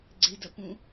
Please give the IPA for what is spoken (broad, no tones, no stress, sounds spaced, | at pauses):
ɡ͡ǀ e d ɐ p ũ